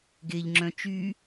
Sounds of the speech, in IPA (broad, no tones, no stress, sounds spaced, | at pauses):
ɡ e ʎ ŋ͡ǁ œ̃ t͡ʃ y